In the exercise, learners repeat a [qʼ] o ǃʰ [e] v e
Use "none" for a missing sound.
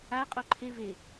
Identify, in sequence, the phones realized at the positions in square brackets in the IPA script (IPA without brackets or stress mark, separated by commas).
qʼ, e